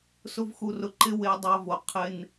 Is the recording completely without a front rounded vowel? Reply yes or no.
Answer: yes